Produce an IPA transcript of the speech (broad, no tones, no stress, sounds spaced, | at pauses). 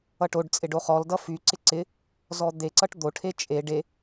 ʌ ʈ o ɖ t͡sʼ ɪ ɖ o χ ɔ l d ʌ f y ǀ ɪ ǀ ɪ | z ɔ d̪ e ǀ ʌ ʈ d̪ o ʈʰ e t͡ʃʼ e ɖ e